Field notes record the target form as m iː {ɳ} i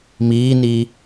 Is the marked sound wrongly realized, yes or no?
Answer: yes